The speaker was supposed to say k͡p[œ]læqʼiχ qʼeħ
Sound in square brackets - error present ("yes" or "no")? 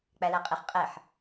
yes